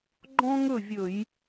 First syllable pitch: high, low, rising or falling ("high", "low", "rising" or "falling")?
high